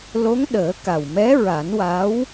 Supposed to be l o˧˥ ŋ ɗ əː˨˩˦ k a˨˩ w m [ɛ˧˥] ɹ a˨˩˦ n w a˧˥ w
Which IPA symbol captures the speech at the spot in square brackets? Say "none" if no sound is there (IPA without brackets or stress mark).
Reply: ɛ˧˥